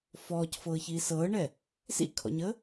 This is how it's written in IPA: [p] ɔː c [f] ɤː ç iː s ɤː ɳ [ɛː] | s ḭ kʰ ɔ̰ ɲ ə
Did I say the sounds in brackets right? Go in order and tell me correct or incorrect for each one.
incorrect: f, correct, incorrect: ɛ

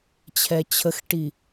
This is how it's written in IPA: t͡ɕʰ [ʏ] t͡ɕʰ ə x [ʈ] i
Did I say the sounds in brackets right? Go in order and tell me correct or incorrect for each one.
incorrect: ɛ, correct

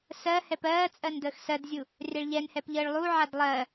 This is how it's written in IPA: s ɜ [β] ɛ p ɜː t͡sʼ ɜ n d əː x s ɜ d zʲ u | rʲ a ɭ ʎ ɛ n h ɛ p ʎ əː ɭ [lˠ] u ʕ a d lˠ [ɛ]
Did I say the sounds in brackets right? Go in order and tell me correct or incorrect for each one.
incorrect: h, correct, incorrect: ɜ

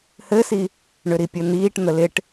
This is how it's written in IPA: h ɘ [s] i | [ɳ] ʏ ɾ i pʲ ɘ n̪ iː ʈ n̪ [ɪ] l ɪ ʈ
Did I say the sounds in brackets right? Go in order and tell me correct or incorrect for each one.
correct, correct, incorrect: ə

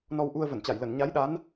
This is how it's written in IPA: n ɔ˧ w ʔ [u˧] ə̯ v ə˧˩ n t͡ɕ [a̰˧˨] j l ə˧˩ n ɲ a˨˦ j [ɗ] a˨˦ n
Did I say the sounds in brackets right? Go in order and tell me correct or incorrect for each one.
correct, incorrect: a˧˩, correct

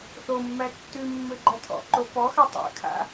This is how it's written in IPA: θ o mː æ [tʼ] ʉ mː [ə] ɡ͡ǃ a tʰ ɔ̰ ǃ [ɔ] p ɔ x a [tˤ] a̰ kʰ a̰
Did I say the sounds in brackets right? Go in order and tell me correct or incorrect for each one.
incorrect: tː, incorrect: ø, incorrect: o, correct

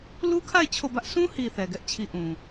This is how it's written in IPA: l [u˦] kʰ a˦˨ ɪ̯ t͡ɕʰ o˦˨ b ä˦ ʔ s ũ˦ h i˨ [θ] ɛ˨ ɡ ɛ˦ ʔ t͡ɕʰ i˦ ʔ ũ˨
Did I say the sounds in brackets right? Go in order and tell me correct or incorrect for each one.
correct, correct

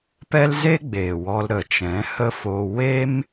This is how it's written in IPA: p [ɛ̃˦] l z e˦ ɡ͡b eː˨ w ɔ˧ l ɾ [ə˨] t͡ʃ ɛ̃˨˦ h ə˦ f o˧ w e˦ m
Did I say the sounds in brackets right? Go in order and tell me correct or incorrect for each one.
incorrect: ɛ˦, correct

